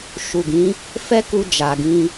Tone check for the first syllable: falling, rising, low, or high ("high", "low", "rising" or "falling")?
low